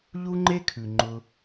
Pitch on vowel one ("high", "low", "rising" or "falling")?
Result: high